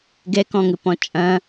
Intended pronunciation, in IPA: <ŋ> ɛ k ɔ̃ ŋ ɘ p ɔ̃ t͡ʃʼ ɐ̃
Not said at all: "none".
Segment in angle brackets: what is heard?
ɡ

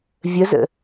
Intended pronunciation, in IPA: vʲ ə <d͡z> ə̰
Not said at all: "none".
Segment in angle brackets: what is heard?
z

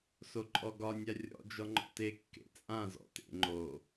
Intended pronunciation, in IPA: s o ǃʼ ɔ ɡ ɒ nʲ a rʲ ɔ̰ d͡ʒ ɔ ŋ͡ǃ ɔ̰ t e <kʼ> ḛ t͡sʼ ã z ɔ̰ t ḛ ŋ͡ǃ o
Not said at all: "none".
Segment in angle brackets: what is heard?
kː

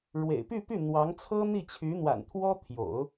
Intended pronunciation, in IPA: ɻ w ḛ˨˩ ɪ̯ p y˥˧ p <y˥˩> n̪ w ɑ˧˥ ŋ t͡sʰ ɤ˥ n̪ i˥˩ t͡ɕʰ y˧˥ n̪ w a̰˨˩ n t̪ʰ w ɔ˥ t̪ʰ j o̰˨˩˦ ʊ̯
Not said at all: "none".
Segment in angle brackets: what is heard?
y˥˩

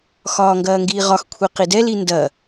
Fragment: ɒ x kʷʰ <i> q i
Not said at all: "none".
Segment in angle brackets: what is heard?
i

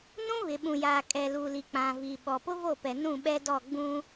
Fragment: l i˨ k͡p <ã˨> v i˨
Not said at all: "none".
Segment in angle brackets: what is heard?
ã˨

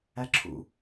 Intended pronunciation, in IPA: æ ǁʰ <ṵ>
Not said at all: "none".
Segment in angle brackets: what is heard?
ṵ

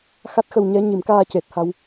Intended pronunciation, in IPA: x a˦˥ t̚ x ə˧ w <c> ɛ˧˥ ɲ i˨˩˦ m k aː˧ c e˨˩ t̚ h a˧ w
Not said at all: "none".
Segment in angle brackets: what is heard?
ɲ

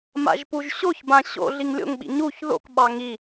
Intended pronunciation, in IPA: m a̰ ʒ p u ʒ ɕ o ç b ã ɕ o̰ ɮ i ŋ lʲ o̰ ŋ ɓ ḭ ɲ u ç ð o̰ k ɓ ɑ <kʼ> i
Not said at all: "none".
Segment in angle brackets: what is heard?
ŋ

